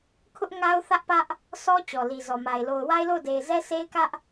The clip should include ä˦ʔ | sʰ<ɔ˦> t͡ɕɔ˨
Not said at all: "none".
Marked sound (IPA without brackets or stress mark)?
ɔ˦